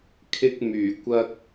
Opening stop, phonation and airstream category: aspirated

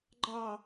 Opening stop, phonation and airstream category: click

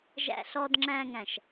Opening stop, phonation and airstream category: plain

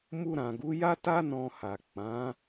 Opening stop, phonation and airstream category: plain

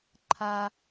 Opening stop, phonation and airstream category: click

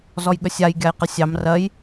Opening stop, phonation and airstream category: implosive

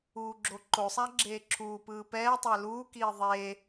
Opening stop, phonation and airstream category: click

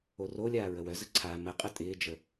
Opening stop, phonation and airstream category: click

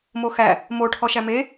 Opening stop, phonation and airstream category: aspirated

